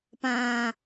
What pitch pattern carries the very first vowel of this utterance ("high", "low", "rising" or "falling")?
low